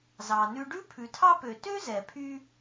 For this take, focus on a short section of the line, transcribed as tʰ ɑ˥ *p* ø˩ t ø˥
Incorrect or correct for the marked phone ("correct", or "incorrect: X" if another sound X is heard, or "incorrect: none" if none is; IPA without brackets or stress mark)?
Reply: correct